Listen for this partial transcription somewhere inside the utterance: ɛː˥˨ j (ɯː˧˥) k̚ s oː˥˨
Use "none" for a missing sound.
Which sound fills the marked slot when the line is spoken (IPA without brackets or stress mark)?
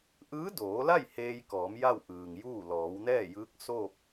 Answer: ɯː˧˥